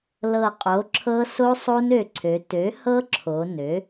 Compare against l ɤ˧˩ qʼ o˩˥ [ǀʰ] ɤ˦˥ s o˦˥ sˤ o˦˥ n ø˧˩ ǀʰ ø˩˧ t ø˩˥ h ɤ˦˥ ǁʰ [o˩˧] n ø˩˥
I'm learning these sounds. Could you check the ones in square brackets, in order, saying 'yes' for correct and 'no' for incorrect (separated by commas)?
no, yes